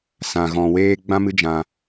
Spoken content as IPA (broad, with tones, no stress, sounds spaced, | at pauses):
s ã˨ ɣ ɔ̃˨ w eː˧ ɡ͡b ã˦ m ɨ˦ d͡ʒ ã˧